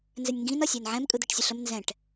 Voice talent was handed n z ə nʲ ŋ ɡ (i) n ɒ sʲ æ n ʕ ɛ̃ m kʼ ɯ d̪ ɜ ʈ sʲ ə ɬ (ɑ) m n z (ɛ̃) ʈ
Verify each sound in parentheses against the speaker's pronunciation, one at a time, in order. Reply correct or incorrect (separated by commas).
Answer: incorrect, incorrect, correct